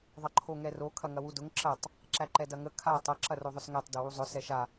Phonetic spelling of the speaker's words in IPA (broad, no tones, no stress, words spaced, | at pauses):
ðˤɐǃʰoŋɛro kʰɐŋɐwudʊŋ ǁɐtˤ | ǁæǃɛdɐŋə kʰa tˤɐ ǁɐroðˤʊsŋætˤ dɵwuzˤʊ sɛʃa